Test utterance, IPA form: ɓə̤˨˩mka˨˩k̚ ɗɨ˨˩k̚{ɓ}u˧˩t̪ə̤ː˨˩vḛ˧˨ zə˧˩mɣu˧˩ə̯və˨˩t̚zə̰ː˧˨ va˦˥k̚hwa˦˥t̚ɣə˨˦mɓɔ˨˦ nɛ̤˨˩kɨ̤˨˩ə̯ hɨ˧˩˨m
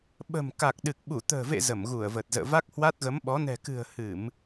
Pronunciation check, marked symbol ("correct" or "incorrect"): correct